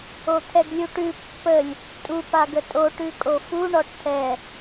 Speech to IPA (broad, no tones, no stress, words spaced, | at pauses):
ot̪ʰɛɡlʲuʈʉ pːəlʲ | tʼu paɡətʼo ʈʉkʼofu ɳɔʈt̪ʰɛ